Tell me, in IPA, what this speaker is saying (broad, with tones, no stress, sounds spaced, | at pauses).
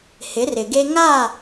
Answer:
h ɪ˨˦ r ɪ˨ ɡ e˦ ŋ a˦˨